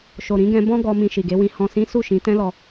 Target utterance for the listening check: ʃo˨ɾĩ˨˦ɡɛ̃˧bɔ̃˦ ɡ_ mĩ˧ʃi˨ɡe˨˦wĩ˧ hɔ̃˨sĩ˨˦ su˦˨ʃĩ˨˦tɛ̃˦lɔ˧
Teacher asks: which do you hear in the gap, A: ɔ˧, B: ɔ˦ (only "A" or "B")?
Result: A